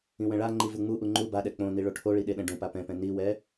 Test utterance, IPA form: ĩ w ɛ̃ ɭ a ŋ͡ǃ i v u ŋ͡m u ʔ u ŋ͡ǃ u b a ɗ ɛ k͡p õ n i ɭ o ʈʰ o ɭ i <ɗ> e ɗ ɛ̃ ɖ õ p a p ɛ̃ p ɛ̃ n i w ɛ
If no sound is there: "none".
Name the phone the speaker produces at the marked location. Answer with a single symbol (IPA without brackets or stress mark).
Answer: ɗ